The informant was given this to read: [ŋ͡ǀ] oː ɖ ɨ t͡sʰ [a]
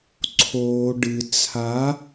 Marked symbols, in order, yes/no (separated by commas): no, yes